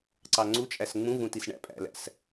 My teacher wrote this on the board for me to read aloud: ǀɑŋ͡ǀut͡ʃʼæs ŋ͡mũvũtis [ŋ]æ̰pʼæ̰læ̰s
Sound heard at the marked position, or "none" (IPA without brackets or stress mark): ɳ